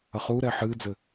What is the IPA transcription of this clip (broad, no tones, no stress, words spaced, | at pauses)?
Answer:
ɐχuːɾɛ ħɨːd͡zɘ